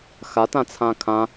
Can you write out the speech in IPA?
xatãt͡sʰã kʰã

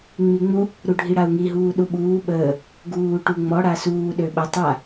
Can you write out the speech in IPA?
ŋ͡miŋ͡mu | ɾuɖʱiɽau̯ŋi ɦuːɗuɓuː ɓəː | ɡuːʈuŋ͡mɔ ɽasuː ɗøɓə tˤa

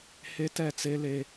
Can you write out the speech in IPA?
he˦tɛ˦˨t͡se˦ le˦

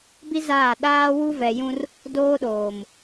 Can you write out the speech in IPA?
bi˦ zaː˦˨ ɗaː˦wu˦vɛ˨jũ˦r | doː˦ɗoː˨m

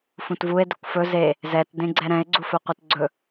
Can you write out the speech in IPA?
fũtvue̯ dɛkʷfɵ ze | zɛt dẽɡ͡ǀɛɾɛ̃e̯ ɡ͡ǀufɵqʷetɡ͡ǀɵ

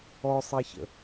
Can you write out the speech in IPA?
ɔsˤeçə̰

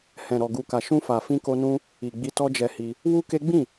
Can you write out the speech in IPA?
hɛ̃˨ɾɔ˨ɡu˨ ka˨ʃũ˧fa˨ fĩ˧ko˧nũ˦ | i˨ ɡ͡bi˧tɔ˦d͡ʒɛ˧hi˧ | wu˦ke˦ ɡ͡bĩ˦˨

